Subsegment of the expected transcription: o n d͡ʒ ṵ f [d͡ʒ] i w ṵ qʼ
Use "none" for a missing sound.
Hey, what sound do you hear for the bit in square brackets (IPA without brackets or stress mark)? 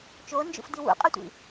d